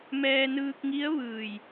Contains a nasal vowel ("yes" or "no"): no